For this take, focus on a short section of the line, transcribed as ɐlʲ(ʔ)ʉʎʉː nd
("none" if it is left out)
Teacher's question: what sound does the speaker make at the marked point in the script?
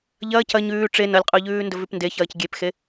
qʼ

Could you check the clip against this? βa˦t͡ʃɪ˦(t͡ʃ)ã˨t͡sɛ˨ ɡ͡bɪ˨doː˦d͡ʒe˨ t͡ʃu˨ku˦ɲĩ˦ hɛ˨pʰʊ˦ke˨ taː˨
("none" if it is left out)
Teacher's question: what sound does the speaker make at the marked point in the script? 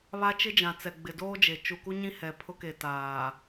d͡ʒ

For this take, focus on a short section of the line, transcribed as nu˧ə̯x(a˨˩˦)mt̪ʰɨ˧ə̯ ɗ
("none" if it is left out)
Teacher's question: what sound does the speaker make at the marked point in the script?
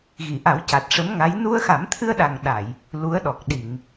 a˨˩˦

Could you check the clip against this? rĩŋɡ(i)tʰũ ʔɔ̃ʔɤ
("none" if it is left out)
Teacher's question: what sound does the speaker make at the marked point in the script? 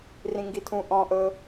i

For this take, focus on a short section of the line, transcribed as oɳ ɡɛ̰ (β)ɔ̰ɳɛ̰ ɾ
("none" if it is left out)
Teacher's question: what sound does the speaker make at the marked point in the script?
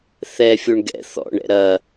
θ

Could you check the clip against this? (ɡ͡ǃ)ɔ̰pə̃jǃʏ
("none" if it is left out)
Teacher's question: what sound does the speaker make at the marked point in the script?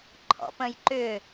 ǃʰ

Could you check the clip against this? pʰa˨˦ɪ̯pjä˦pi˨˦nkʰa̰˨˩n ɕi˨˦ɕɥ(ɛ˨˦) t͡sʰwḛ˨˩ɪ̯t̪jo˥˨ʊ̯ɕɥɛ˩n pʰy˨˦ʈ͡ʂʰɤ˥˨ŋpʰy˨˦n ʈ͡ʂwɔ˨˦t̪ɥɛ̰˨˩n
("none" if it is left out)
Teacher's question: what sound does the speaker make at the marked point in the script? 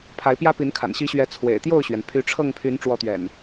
ɛ˨˦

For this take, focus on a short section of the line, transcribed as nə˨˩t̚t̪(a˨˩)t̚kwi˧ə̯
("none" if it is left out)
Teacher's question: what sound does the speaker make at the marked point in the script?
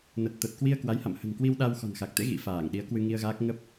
ə˨˩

